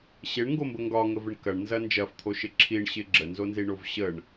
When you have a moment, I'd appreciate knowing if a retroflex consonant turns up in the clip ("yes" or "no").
yes